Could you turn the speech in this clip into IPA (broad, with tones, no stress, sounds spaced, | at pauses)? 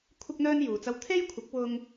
kʷʰ ɪ˥ k̚ n̪ œː˥ n j uː˨ t͡s ɐ˥ w t̪ʰ e˥ j kʷʰ ɪ˨˥ k̚ w ʊ˧ ŋ